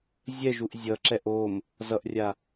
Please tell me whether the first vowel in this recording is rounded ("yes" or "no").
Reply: no